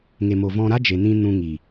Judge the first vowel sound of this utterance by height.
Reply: mid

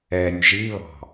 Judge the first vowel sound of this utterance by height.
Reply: mid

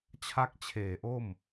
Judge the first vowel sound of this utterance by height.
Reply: low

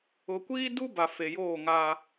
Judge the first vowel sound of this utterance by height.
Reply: high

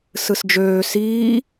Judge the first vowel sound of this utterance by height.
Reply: high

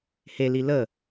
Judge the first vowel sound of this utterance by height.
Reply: mid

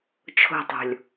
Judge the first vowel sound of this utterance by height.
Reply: mid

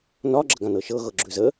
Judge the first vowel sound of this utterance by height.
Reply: low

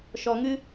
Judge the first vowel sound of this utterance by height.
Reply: mid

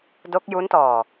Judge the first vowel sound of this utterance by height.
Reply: mid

